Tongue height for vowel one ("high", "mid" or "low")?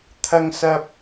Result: low